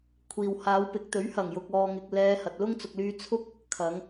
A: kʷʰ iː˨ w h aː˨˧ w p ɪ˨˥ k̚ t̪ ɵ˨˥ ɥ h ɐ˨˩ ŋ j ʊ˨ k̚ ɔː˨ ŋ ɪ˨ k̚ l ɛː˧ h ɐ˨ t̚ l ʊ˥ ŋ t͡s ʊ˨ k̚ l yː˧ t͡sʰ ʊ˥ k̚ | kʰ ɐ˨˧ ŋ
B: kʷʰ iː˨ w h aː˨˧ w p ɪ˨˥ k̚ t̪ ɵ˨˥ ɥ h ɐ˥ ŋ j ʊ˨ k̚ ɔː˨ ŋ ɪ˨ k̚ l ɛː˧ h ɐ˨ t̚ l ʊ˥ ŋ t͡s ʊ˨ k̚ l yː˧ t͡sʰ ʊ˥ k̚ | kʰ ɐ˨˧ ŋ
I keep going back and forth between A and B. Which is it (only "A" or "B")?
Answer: A